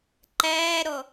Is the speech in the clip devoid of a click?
no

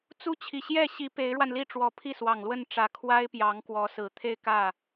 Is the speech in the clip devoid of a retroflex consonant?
no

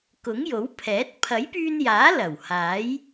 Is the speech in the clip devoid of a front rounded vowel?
no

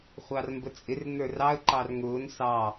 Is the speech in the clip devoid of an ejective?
no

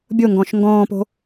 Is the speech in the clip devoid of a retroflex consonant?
yes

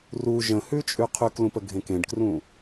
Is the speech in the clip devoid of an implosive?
yes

